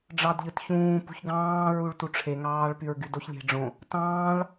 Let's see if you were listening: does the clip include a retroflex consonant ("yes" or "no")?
yes